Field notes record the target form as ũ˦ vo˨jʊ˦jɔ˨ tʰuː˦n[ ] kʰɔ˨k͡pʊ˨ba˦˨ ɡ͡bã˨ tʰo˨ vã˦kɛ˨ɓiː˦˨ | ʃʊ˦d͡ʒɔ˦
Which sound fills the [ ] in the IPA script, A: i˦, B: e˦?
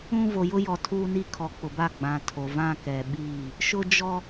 A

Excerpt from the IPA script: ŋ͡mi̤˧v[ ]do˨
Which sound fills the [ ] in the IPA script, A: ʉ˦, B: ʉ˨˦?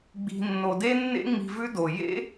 A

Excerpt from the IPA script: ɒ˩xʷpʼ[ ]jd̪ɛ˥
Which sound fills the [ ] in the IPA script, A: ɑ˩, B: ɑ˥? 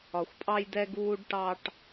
B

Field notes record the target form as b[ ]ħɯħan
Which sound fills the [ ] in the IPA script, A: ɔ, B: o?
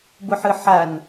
B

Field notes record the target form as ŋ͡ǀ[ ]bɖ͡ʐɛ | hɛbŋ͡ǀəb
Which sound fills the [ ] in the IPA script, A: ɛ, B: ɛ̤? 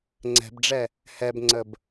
B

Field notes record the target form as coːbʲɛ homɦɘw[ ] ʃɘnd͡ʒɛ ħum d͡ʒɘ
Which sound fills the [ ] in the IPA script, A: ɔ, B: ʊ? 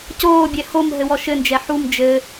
A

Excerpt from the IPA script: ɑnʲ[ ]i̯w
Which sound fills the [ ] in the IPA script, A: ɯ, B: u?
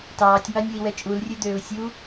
B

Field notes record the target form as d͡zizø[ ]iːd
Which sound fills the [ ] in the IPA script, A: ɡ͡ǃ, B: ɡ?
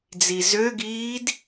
B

